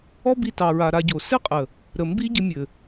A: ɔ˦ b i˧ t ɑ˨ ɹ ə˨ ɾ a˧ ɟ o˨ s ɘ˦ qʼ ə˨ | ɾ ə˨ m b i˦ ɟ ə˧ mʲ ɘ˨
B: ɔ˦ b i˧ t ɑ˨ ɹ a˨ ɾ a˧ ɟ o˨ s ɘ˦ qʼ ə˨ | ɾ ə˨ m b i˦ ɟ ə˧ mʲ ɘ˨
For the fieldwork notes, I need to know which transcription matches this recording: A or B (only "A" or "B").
B